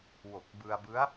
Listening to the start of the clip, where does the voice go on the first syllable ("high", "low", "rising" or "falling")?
low